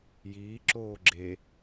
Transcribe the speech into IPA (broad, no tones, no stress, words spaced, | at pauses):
jiː ǁoːɡ͡ǁe